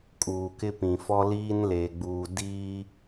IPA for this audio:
kʼuː˨kɪ˦pĩ˨fɔ˦ liː˦nle˨ɡ͡buː˨ diː˦

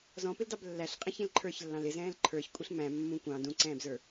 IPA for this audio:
zɔ̃pɪldɑb lːæɬqʼɛ̃ç ĩlǃʰə˞çlːɑ̃l ɪzɛ̃ːl ǃʰə˞ç kʷʼiɬmæ̃ mːũ kʷɑ̃ dũǀɛ̃ːbzə˞

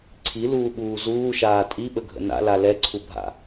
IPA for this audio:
ǀʰiluːɓuː zuːʃaː tʼiɓəɡʱə̰ na̰la lɛǀʰubʱa̰

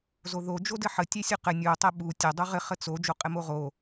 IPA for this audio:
zoðo d͡ʒodɘħə tʲɛsʲuqɘ nʲu tˤɛɓu tʲə dˤuʁɘ χət͡so d͡ʒoqʼɘmoʁo

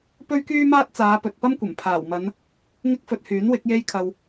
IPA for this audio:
pɵ˥ɥkyː˥maː˥t̚ t͡saː˨˧pɵ˨t̚pɐ˥mkʷɐ˨˩m pʰaː˨˩wmɐ˨˧n | ŋɪ˥k̚fɵ˧t̚hyː˨˥nwɪ˨˥k̚ je˧j kʰɐ˨w

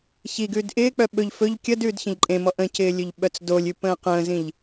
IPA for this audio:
çiɡʉːd ʔɪːk͡pœ ɓɵʎ fɵʎ kʲəd ʉːdçə̃ʎǃʼẽmɔ ʔə̃cɪː lʲɵʎɓœt͡sdolʲʉ pə̃ːqə̃ːzĩʎ

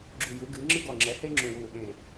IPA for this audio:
ɡ͡ǁu˧˩ju˩˥ɡɨː˩˥ŋ͡ǁɨ˥ ɡɔ˧˩ŋ͡ǁɛ˩˥he˥ ŋ͡ǁũ˧˩wuː˧˩ɠẽː˧˩

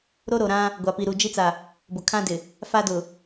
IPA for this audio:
ɾo˦ɾo˨ɾã˦ | ɡʷa˨pi˨ɾu˨ d͡ʒi˦t͡sa˨ | bʊ˨kʰã˦dɪ˨ | fa˦dʊ˨

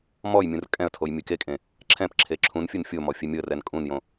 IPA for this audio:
mɔjmʲũr kʼɛ̃ə̯tʰoj mʲɨkekʼẽ | ǁʰɛ̃pǁʰe ǁʰũnfʲɯn fʲo mɔfʲemʲoə̯rɛn kʼũnjõ

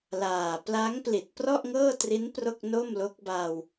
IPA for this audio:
laː˨˩ pla˦˥ŋpli˨˩t̚ prɔ˥˩ʔŋɤː˥˩tri˦˥n pro˥˩k̚no˥˩mlo˦˥k̚ baː˧w

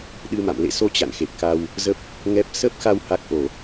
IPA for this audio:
ɗɨ˧ma̰˧˨m lḛ˧˨so˧ t͡ɕa̰˧˨nxe˨˩p̚ka˧w | zə˦˥p̚ | ŋɛ˦˥p̚ sə˦˥p̚xa˧w ha˦˥k̚ʔo˧˩˨

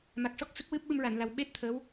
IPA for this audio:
ma˨˩k̚ʂɔ˦˥k̚ sɨ˦˥k̚wɨ˦˥p̚ɓɨ˧m ɹa˨˩˨nla˨˩wɓe˦˥t̚ t̪ʰə˧˥w

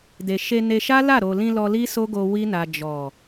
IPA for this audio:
de˨ʃe˧ ne˧ʃa˦la˦˨ ɾo˨lĩ˧ lɔ˧li˦so˦ɡo˧ wi˦na˧ d͡ʒɔ˨

